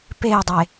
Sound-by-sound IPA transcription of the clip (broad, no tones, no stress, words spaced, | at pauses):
pei̯dˤe